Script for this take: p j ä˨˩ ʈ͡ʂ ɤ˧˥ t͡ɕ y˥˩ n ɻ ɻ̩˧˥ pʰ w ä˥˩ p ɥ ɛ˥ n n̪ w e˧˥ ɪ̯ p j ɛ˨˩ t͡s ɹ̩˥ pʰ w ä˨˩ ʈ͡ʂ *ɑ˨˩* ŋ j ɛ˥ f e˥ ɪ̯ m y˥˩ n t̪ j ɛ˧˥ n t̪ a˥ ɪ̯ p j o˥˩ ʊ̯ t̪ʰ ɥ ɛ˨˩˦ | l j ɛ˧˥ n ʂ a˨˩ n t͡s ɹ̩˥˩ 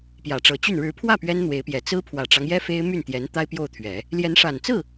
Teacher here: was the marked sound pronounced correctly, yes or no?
no